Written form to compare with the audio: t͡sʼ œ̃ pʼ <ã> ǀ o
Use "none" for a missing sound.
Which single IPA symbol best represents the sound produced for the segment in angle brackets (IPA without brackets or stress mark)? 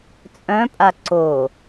a